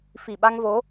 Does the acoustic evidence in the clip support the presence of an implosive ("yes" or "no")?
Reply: yes